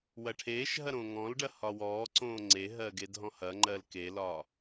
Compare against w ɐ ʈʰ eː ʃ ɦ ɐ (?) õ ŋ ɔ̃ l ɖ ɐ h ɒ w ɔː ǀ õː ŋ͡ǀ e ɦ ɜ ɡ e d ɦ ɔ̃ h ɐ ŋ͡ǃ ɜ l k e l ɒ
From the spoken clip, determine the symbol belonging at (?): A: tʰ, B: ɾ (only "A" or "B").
B